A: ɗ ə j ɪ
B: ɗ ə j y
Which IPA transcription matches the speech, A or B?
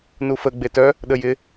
A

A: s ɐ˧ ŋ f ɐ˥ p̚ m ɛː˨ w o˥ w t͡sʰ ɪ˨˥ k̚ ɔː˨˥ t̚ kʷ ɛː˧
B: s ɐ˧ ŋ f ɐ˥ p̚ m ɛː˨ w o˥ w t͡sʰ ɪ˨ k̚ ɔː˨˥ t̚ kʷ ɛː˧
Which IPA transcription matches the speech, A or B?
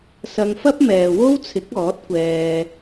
A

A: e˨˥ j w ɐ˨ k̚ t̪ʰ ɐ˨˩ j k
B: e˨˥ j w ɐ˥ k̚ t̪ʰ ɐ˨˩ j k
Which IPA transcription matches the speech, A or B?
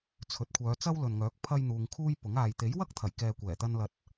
B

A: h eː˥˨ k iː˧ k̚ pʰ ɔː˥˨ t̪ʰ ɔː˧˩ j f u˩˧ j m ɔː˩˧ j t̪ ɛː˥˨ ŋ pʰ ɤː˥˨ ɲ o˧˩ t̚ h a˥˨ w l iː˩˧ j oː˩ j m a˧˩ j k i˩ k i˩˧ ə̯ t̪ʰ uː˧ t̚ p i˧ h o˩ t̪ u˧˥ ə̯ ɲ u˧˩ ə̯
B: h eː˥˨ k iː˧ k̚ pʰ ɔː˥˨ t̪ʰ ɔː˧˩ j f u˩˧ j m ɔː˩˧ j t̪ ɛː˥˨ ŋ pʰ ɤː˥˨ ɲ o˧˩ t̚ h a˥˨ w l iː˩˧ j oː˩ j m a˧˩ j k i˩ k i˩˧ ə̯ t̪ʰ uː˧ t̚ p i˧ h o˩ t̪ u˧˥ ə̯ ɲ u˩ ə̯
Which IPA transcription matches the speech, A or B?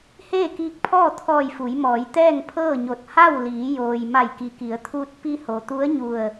A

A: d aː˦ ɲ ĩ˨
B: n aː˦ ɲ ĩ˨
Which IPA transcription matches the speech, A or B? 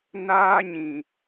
B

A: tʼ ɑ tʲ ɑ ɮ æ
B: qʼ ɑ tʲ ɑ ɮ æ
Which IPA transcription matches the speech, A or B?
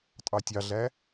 A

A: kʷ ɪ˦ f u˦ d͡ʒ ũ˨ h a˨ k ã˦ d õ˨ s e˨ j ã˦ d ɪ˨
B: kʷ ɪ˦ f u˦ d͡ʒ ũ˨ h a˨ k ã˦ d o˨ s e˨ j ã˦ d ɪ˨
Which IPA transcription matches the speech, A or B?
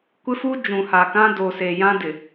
B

